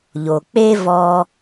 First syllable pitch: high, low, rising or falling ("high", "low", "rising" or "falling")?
low